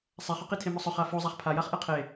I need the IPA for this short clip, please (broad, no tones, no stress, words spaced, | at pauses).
sˤɛχʊqi tʰemʊsˤʊ χafo zˤaχpʰajaχ ʔɛqʰe